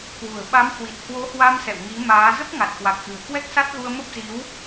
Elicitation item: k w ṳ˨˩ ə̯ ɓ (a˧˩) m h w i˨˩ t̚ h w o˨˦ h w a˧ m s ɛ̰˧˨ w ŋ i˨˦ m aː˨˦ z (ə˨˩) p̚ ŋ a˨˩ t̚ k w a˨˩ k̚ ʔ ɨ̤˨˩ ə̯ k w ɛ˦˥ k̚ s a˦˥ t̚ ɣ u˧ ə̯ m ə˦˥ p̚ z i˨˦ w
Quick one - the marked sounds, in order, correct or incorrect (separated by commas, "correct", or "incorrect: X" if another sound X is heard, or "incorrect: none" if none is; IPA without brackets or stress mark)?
incorrect: a˨˦, incorrect: ə˦˥